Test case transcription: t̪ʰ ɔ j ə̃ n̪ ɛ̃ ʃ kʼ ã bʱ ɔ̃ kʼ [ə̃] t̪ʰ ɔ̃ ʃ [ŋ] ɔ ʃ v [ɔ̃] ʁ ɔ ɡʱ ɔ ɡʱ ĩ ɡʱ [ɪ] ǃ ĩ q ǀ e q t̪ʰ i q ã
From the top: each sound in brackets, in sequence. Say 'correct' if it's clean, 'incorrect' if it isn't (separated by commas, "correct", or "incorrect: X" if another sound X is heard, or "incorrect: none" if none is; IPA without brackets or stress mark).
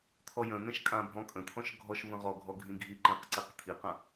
correct, incorrect: ɡʱ, incorrect: ə̃, incorrect: i